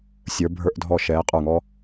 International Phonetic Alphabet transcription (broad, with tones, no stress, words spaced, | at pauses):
sʲə˞˩˧bʱə˞˧˩ʔdʱɔ˧˩ ʃɛː˩˧ qʼə˞˧˩ŋɔ˧